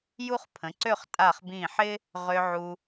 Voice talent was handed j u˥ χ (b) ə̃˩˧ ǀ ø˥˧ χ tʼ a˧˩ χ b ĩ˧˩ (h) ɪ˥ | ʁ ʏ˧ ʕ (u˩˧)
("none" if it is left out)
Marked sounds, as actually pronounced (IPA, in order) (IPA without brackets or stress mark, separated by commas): pʰ, ħ, u˧